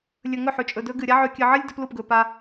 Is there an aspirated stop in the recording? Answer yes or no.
no